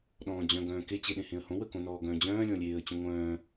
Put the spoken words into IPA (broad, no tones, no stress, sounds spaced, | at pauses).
ɗ ɔ̃ː d͡ʑ œ̃ ɡ œ̃ː k e t͡ɕ e ɗ ẽ h ẽ ə̯ h õ w ə k õ n ɔː ɡ œ̃ː d͡ʑ œ̃ː lʲ ɔ̃ lʲ eː ə̯ t͡ɕ õ ŋʷ œ̃ː